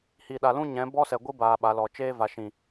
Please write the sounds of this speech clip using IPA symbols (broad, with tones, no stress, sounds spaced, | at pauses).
h i˨ ɗ a˨ l ũ˦ ɲ ɛ̃˨˦ b ɔ˦ s ɛ˨ ɡʷ ɨ˦ b aː˧ ɓ a˨˦ l ɔ˨ t͡ʃ eː˦ v a˨ ʃ ĩ˨